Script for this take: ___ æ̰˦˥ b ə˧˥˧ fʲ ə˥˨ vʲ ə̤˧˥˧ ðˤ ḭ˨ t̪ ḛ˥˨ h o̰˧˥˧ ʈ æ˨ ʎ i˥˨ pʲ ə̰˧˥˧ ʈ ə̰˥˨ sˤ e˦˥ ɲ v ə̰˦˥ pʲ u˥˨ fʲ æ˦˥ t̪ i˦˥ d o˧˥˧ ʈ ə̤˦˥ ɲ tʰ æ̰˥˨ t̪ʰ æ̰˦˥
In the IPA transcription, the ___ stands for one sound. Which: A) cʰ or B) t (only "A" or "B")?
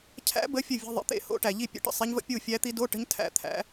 A